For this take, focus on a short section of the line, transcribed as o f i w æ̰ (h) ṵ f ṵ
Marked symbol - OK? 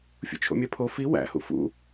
yes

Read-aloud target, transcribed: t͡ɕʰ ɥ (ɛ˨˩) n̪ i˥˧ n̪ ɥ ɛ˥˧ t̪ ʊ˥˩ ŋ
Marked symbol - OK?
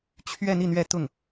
no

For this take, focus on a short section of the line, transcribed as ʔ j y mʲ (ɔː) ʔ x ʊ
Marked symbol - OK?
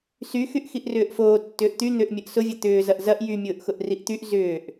no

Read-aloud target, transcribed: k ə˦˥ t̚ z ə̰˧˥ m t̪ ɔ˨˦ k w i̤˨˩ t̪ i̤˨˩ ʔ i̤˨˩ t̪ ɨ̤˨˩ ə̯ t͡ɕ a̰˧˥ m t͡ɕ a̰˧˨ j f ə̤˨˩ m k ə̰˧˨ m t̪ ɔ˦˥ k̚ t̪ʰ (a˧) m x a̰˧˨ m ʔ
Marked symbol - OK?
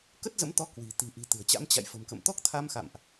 yes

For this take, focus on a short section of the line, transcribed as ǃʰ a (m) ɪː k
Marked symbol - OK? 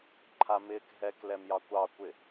yes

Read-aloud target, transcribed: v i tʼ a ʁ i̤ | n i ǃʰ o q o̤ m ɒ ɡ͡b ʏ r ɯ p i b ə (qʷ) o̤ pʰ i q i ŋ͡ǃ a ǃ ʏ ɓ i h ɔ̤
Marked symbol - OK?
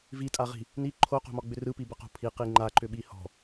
no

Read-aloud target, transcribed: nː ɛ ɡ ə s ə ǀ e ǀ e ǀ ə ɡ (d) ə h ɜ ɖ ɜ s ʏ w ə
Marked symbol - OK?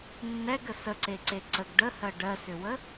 no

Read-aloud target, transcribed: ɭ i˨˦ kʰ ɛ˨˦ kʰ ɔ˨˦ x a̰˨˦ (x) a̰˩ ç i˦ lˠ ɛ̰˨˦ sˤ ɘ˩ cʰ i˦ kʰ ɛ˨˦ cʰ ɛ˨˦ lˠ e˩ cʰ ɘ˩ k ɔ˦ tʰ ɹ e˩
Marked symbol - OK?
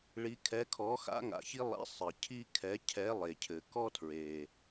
no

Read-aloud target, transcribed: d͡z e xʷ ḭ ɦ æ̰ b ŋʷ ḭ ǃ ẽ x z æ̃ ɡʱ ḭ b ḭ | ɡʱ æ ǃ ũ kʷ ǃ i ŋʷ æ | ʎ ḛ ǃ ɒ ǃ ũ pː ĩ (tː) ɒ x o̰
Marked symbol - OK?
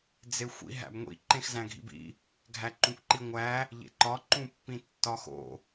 yes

